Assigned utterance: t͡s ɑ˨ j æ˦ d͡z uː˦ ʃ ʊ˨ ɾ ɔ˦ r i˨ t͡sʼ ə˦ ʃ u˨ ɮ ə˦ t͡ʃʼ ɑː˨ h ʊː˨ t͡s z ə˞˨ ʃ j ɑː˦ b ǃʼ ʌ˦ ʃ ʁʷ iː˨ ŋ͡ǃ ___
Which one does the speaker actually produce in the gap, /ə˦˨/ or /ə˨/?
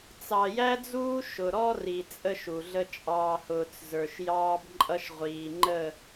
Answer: ə˦˨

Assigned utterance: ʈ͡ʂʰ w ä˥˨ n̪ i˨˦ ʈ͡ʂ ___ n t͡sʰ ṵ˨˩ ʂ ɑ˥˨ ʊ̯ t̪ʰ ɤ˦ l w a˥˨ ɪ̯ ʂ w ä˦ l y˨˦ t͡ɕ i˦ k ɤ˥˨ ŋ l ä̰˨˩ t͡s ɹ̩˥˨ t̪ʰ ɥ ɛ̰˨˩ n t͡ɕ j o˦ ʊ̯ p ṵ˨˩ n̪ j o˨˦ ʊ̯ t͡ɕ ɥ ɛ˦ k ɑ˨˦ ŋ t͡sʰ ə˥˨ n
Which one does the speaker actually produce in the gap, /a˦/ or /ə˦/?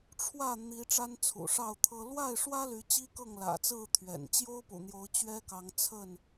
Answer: a˦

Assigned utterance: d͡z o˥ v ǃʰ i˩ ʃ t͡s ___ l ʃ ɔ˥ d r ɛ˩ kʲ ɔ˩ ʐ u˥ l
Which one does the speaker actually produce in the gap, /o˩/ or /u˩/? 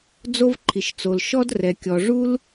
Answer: o˩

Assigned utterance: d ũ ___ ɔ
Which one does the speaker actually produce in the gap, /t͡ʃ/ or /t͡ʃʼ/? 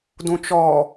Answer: t͡ʃ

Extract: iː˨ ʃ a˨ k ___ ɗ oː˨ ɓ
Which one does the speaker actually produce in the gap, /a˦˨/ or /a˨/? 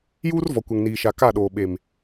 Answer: a˦˨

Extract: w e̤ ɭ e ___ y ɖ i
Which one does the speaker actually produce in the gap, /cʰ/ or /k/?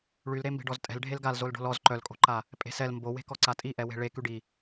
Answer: k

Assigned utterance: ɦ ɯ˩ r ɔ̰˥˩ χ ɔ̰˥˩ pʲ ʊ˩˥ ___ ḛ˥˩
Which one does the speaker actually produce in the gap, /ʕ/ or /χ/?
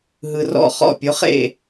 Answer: χ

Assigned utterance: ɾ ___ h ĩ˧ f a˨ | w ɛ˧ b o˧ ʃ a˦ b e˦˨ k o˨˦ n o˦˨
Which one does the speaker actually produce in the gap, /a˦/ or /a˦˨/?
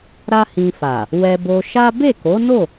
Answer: a˦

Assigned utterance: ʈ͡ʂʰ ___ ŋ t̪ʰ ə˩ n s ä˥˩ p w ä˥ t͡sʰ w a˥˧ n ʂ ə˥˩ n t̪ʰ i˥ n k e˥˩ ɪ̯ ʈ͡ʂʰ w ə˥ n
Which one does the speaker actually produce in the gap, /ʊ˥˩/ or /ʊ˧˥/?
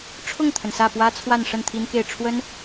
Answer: ʊ˥˩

